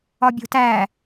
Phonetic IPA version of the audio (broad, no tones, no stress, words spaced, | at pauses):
ɒbʲo̤tæ